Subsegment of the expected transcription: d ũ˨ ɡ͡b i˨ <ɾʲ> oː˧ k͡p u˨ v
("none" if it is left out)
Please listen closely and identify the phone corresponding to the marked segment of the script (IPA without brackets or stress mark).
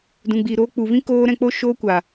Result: ɾ